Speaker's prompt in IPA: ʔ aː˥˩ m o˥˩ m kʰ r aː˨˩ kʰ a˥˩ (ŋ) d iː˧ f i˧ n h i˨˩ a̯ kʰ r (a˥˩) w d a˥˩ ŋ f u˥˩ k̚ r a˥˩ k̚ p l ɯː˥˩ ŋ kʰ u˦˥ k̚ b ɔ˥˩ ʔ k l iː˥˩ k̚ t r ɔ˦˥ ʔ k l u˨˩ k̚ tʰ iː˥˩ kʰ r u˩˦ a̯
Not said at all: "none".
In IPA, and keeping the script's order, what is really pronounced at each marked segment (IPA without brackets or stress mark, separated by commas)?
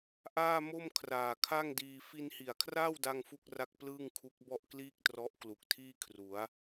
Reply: ŋ, aː˥˩